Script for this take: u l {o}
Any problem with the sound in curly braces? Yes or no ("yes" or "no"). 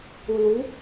yes